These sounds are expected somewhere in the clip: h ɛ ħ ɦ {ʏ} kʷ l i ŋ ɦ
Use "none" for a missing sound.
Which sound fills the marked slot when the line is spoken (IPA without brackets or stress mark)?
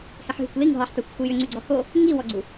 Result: y